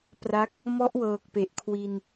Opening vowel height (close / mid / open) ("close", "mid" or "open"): open